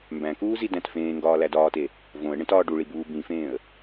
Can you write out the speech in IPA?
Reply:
mbæ̃kuː zidæ̃tfẽːŋɡɒː lædɒːte | võə̯ɳẽt ɒːɖuɭi buːbĩfẽːə̯

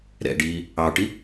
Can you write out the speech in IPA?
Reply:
ɾɛ̰ɖiː | ɑʈi

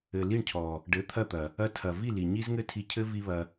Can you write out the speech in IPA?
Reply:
ɘ˨li˦˨ɳcʰɔ˨ | ɖɘ˨˦t̪ʰɐ˦˨t̪ɐ˨ | ɐ˧tʰɐ˨ vi˦˨li˨ɲi˦z ŋɘ˦tʰi˧cʰɘ˦ vi˦βɐ˧

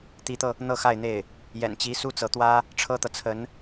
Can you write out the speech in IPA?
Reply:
t̪i˧˥t̪ɤ˧ | n̪ɤ˥˧xa˥˧ɪ̯n̪e˥˩ɪ̯ | jɛ̰˨˩nt͡ɕi˧˥ su˥t͡sɤ˧˥t̪wä˥ | ʈ͡ʂʰɤ˥t̪ɤ˨t͡sʰə˧˥n

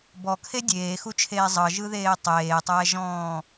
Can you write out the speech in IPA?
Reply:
bɔkʰe dʲeːxut͡ʃʰeː zˤɤʒɯðeː tˤeːtˤɛːʒɔ̃ː

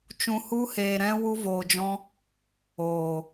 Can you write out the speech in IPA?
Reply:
t͡ʃũ˧hu˦heː˧ ɾɛ̃˦ wu˦voː˧d͡ʒɔ̃˦ | oː˨

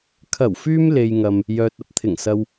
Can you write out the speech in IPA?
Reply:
kʰɐ˨˩wfyː˧m le˧jŋɐ˧m | jœː˨t̚ɐ˧p̚t̪ʰɪ˨˩ŋ sɐ˧w

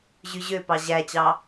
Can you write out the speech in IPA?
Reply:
ʑyʑøpɑ ʑæt͡ɕɑ

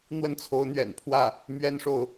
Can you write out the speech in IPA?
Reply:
n̪wə˥˩nt͡sʰo˧˥ʊ̯n̪ɥɛ̰˨˩npʰwä˥˩ | mɥɛ˥nʂo˨ʊ̯

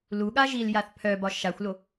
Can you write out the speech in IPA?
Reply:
luɠa ʒiljaθ pʰœbɒ ʃaxʷlo

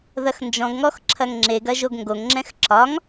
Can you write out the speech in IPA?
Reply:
ðɐxnd͡ʒɔ̃ɡŋɔx ǁʰɐŋŋ͡ǁeɡɐ ʒoɡŋɡoŋŋ͡ǁɛ̃x ǁɒŋ

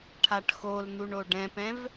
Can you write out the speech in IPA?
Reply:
ʈʰaʈxoln̪uɳ oɖɛ̃pɛ̃v

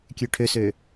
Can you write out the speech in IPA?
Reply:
kʲøʈʰøsø

